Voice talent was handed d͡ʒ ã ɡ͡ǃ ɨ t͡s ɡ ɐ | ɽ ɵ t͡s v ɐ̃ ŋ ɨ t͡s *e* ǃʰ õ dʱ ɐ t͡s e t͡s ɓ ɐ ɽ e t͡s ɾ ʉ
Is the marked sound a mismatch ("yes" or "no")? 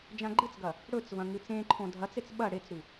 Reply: yes